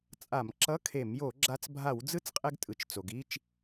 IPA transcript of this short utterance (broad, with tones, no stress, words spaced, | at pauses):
t͡sʼa˧˩˧mǁʌ˧˥˧kʰe˧˩˧m jo˧˩˧ɡ͡ǁa˧t͡s bʱa˧˩˧wd͡zɯ˦˥t͡sqʼɛ˧ɡtʼɯ˩t͡ʃ t͡so˩ɡi˧˥˧t͡ʃ